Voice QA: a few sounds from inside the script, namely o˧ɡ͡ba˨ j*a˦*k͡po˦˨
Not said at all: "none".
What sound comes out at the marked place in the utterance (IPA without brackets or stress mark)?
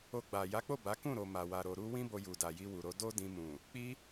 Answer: a˨˦